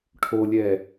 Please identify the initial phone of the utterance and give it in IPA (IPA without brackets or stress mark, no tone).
ʈʰ